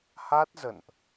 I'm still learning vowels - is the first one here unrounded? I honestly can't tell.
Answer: yes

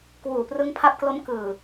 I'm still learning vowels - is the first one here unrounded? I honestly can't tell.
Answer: no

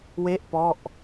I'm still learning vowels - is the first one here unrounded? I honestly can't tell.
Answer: yes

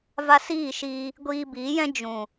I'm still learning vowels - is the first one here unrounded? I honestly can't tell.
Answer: yes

